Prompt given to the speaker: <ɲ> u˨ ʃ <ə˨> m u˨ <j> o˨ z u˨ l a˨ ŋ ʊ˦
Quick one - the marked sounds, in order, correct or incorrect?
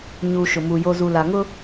correct, incorrect: ʊ˨, correct

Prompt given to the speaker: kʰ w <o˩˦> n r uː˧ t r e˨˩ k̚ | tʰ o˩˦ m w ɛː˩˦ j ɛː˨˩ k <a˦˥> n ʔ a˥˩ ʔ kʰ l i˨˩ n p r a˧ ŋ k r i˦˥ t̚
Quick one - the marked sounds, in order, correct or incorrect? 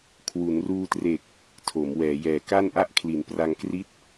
incorrect: u˩˦, incorrect: a˥˩

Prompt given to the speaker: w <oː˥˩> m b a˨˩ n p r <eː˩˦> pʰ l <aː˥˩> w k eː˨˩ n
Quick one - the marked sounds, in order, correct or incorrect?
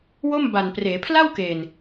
incorrect: o˥˩, correct, incorrect: a˥˩

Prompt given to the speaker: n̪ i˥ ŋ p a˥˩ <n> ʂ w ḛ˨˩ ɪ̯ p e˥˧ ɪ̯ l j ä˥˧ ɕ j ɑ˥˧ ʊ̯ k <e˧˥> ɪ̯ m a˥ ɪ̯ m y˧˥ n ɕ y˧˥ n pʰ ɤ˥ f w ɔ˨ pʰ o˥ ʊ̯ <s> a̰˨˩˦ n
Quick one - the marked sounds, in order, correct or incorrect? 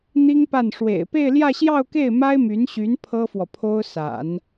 correct, incorrect: e˥˩, correct

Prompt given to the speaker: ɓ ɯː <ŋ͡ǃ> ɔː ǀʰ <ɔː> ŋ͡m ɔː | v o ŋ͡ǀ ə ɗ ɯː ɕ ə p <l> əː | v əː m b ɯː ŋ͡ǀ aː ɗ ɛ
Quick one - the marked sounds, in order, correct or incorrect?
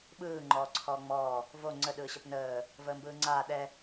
correct, correct, incorrect: n

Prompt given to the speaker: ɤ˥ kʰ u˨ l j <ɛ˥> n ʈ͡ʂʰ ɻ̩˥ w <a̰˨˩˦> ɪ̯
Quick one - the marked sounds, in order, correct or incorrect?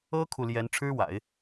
incorrect: ɛ˧˥, correct

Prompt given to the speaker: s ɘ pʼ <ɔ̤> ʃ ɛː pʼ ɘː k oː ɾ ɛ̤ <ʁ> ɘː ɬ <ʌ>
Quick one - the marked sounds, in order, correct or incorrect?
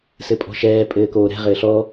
correct, correct, incorrect: ɔ

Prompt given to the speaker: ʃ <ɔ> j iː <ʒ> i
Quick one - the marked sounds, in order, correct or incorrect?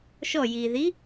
correct, incorrect: ð

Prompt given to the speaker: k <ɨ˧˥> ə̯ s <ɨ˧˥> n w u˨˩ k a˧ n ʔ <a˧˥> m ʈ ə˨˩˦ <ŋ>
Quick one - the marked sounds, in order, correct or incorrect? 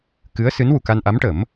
correct, correct, correct, incorrect: m

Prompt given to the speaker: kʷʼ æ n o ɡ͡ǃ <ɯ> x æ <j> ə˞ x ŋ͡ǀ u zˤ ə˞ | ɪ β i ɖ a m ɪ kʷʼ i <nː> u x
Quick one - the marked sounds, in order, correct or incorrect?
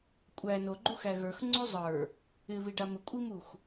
incorrect: u, incorrect: ɣ, incorrect: m

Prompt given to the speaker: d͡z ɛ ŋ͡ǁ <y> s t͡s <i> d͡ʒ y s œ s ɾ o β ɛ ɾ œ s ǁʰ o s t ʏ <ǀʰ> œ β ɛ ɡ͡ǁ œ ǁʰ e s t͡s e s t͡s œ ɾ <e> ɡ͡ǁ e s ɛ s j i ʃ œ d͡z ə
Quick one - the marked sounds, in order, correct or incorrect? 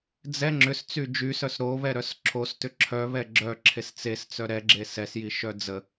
incorrect: ʏ, incorrect: y, incorrect: ǁʰ, incorrect: ɛ

